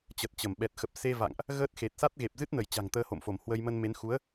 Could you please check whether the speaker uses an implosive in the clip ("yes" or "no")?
yes